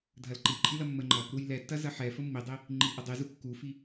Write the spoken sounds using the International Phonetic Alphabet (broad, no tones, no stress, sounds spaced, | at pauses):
dʱ ɐ l ǃ i ǃʼ i l ɐ mː ə ŋ͡ǃ ɐ | ɾ u j l ɛ tː ɐ z ɐ ħ ɛ f ə mː i dˤ i | ŋ͡ǃ i ʔ ə dˤ i z u kː u f i